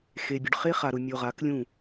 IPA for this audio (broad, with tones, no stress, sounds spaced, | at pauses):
x e˨ bʲ ʊ˨ ɖ χ e˦ χ a˨ ɾ ʊ˨ mʲ o˨ ʁ a˨˦ k lʲ ũ˦˨